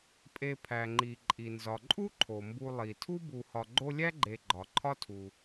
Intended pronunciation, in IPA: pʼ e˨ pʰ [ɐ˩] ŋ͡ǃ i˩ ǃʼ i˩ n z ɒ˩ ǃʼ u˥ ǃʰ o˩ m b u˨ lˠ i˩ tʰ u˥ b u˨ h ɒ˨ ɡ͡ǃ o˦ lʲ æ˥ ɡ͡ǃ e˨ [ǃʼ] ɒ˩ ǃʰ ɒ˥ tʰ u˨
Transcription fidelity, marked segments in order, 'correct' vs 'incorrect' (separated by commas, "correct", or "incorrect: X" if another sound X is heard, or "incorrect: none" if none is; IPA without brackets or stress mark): incorrect: æ˩, incorrect: ɡ͡ǃ